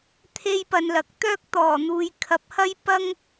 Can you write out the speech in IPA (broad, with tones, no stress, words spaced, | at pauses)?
t̪ʰe˥jpɐ˧nlɐ˨k̚ t̪œː˥k̚ t̪ɔː˨˩n̪uː˨j kʰɐ˨˥p̚hɐ˥j pɐ˥ŋ